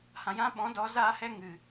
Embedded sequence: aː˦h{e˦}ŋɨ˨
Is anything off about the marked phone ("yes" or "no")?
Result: yes